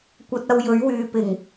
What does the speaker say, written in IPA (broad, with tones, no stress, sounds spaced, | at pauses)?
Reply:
kʷ ɐ˧ t̚ ɐ˧ w j ɵ˨˥ ɥ w yː˨ p ɪ˨˩ ŋ